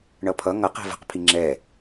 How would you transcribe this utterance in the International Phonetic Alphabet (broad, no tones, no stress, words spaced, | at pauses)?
ɳʌpʰʌ ŋʌ qɛ̤və̤q pʰiŋ͡ǁɛ